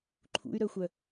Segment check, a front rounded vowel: present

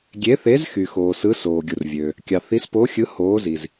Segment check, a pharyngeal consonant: absent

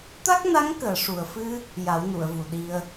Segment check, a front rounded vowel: absent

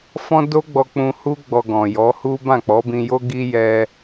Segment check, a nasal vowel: present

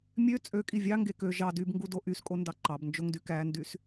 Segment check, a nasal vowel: absent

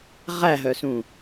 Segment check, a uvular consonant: present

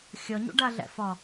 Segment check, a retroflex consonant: present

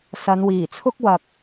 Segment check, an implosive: absent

